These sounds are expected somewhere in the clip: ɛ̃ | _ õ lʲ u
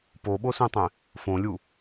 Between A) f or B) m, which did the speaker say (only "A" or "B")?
A